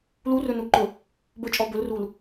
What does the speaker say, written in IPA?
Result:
l u r ɵ n u ǃ ɵ | b ɵ t͡ʃʼ ɔ b ɵ l r u l

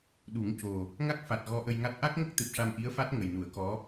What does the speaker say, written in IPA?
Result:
ɗ u˨˩˦ ŋ c o˨˩ | ŋ a˦˥ k̚ f a˨˩ t̚ ɣ ɔ˧˥ ʔ ə˧ j ŋ a˦˥ t̚ ʔ a˦˥ k̚ ŋ ə˦˥ k̚ t̪ ɨ˨˩ p̚ ʂ a˧ m ʔ i˧˥ ə̯ f a˦˥ t̚ ŋ ə˨˩ j n u˨˩˦ ə̯ k ɔ˧˥

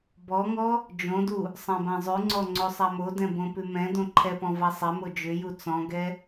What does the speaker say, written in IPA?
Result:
b ɔ ŋ ɔ | d͡ʒ õ d u | sˤ ã b ã zˤ ʉ ŋ͡ǀ ɔ ŋ͡ǀ o sˤ a m o d ɛ̃ b õ p ʉ m ɛ̃ d õ ǃʰ ɛ p ɔ̃ v a sˤ ɛ m o d͡ʒ ʏ j u t͡s ɔ̃ ɡ ɛ

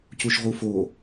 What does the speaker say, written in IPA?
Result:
c u ʃ ʁ u f o

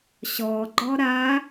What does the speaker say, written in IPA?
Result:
ɕ ɔ ɡ͡ǃ ɔ ɾ a

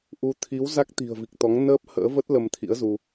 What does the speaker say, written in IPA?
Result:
ʔ u˨˦ t̪ʰ i˨˦ w z a˦˥ k̚ t̪ i̤˨˩ ə̯ v i˨˩ k̚ t̪ ɔ˨˦ ŋ n əː˦˥ p̚ h ə̰ː˧˥ v ə˦˥ t̚ l ə˧ m t̪ʰ ḭ˧˥ ə̯ z u˧

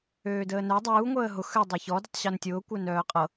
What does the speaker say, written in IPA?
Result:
øː d əː n œ dˤ uː ŋʷ əː ɦ ʊ x ø dˤ e ç ɔ d ʊ tˤ ɕ o n tʲ ʊː kʷ œ n œː qʼ ɤ

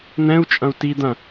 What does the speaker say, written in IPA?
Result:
n̪ ɛ̃ u̯ t͡ʃʼ ɐ̃ u̯ t i d̪ ɐ̃

